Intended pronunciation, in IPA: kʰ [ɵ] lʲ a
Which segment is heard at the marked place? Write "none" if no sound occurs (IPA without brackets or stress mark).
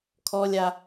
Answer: ɔ